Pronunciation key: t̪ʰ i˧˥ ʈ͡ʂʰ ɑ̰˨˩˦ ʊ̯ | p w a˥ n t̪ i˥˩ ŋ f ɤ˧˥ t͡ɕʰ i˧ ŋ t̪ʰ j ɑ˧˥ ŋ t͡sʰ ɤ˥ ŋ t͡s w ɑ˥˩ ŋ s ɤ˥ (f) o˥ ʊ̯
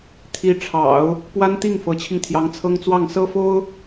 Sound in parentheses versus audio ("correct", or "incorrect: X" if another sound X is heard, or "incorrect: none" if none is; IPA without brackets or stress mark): correct